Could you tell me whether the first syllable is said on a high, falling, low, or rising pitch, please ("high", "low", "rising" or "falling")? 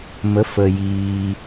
rising